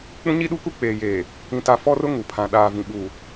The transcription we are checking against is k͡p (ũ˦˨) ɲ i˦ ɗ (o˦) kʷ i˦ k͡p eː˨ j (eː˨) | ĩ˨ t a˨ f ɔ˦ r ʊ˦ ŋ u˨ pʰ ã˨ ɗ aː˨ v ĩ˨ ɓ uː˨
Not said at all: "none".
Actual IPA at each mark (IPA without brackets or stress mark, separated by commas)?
ũ˦, u˦, eː˨